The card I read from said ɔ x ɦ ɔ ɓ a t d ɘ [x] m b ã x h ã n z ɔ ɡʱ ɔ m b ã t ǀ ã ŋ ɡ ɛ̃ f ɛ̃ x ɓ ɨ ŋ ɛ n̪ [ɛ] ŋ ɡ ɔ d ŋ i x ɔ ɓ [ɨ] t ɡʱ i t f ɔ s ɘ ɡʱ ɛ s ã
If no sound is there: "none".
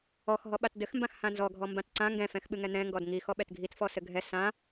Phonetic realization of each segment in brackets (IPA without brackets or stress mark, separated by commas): x, ɛ̃, ɛ